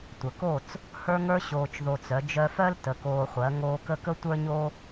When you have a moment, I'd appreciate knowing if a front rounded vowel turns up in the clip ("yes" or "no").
yes